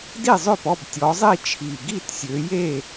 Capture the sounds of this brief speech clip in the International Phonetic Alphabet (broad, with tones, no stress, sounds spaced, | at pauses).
d i˥˨ zˤ ø˥˨ p ɔ˥˨ b tʲ ɔ˨˦ zˤ i˥˨ t͡ʃʰ i˨˩ ɡ i˥˨ t sʲ ø˨˦ j e˥˨